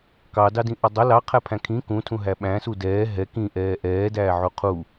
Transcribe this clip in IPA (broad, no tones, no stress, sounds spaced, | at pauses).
k ɑ d ɑ d ĩ ʔ ʌ dˤ ʌ l ɑ qʰ æ pʰ æ̃ kʰ ĩ k ũ tʰ ũ ɦ æ ɓ æ̃ s u d ɛː ɦ ɛ k ĩ ʔ ɛː ʔ ɛː d æː ʕ u qʰ u